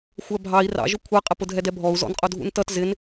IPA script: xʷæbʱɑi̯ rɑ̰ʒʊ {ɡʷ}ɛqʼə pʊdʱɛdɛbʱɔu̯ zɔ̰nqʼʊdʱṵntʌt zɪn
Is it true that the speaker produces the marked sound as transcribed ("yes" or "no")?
no